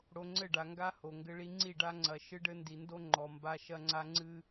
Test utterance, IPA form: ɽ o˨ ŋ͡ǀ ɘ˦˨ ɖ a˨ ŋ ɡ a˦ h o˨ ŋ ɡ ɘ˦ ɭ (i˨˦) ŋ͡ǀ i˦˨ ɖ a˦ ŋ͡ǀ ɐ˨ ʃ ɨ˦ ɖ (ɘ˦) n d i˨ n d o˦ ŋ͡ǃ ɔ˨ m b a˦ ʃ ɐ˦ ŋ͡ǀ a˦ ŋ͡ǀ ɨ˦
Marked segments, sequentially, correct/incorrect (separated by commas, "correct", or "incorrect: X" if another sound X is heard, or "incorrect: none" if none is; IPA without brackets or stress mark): incorrect: i˦, correct